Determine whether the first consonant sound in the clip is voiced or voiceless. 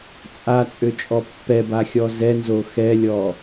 voiceless